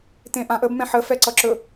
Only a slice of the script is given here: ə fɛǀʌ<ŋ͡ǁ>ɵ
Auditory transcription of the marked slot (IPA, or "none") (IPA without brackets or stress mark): ǁ